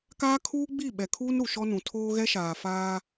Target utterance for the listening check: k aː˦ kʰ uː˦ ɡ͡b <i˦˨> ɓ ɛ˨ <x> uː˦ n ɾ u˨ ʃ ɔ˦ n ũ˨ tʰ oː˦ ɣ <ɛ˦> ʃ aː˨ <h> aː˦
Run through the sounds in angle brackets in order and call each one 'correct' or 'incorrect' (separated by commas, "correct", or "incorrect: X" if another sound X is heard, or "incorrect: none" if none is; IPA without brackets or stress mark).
correct, incorrect: kʰ, correct, incorrect: f